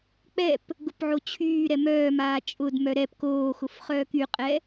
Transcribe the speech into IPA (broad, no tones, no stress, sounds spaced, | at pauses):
k͡p ɛ p | ɡ ʊ p ʕ o t͡ɕʰ yː ɾ ɛ m œː m aː t͡ʃʼ ʊ d m œ ɾ ɛ p k oː x ʊ f χ œː k y qʼ ɛ